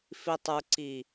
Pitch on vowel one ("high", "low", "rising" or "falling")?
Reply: low